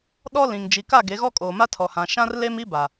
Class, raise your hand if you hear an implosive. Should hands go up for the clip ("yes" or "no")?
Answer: yes